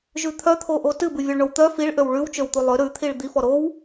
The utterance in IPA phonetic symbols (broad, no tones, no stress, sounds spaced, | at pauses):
ʒ ʉ t̪ʰ œ t̪ʰ o ʔ o t ɨ b ɨ vʲ o ɭ ɳ o w t̪ œ f i ɭ ʔ ø w ɭ ʉ w t͡ʃ ø w t̪ u lˠ ø ɾ ʉ t̪ʰ i ɭ d̪ i f ɔ ɾ o w